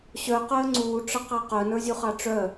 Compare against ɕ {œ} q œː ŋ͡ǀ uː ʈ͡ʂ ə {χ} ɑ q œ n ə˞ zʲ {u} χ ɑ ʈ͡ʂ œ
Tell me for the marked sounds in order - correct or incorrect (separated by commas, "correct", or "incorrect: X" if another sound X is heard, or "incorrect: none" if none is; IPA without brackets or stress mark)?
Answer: correct, incorrect: q, correct